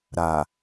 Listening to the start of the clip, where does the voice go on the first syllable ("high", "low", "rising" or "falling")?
low